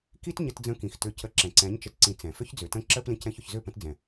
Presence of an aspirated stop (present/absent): absent